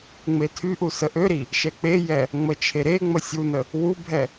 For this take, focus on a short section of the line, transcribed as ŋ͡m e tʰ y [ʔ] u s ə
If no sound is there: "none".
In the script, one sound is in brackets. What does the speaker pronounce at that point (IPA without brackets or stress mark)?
ʔ